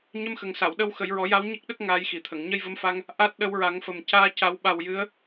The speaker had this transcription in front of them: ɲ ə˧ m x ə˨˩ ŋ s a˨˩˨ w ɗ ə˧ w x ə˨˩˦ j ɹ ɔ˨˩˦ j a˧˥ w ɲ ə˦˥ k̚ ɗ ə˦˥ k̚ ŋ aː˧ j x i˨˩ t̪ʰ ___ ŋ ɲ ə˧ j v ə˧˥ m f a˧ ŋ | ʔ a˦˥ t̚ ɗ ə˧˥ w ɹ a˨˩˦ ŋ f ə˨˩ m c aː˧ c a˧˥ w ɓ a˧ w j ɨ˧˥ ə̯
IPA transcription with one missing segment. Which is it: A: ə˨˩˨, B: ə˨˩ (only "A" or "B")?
A